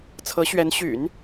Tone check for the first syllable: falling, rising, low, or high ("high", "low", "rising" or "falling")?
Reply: rising